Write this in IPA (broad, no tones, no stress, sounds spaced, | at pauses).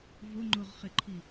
v ʊ ŋ͡ǃ ʊ ʁ χ ɪ ǃʰ i